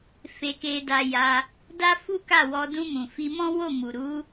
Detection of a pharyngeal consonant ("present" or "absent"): absent